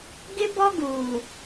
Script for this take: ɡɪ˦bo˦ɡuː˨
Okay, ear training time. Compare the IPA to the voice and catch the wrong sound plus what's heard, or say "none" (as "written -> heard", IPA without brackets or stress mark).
o˦ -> ɔ˦